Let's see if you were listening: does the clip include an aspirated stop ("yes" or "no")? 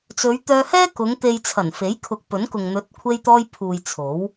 yes